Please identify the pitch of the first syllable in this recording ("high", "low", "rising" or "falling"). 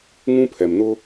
high